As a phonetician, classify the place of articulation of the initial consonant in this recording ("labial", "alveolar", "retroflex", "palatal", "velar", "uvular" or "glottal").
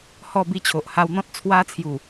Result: glottal